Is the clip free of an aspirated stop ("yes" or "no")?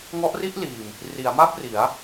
yes